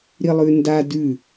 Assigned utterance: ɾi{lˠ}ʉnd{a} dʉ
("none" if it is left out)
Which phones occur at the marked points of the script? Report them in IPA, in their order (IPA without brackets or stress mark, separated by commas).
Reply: lˠ, a